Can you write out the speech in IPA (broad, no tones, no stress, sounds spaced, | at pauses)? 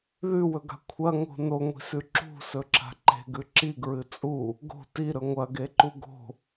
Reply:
ð ʉ w ɵ ɡ a̤ kʷʰ ɐ ŋ o̤ n o ŋʷ i̤ s ʉ ǁ ṳ s ɵ ǁ a̤ ǃ e̤ ɡ ʉ ǁ i ɡ ɹ ɨ t͡sʼ u | ɡ o̤ t i ɾ ɵ ŋʷ ɐ ɡ e ǃ u ɡ o̤